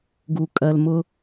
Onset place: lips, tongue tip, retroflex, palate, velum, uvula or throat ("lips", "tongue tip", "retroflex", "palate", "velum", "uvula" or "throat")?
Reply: velum